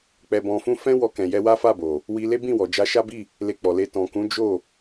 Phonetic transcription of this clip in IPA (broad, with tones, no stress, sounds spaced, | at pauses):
k͡p ɛ˧ b ɔ̃˧ f ũ˦ f ɛ̃˦ w ɔ˧ k ɛ̃˨ j ɛ˧ w a˦ f a˦˨ b o˨ | w i˧ l e˦ b ĩ˦˨ w ɔ˨ d͡ʒ a˧ ʃ a˦ b i˦˨ | l e˧ k͡p ɔ˨ l e˧ t ɔ̃˨ k ũ˨˦ d͡ʒ o˦˨